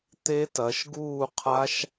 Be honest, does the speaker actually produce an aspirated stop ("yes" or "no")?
yes